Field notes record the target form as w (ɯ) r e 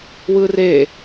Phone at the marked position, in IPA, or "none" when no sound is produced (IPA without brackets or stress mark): ɯ